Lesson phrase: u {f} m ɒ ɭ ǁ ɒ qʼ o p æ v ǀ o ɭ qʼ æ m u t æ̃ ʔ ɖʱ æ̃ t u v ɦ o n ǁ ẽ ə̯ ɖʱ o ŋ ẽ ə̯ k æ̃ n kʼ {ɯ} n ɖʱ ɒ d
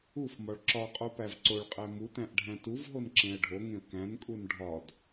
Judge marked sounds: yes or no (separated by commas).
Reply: yes, no